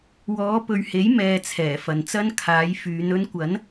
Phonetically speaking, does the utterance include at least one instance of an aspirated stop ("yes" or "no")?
yes